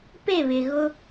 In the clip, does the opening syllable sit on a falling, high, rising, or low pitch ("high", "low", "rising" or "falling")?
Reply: falling